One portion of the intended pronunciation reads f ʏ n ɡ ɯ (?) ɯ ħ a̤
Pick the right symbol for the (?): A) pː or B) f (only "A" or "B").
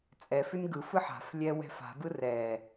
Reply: B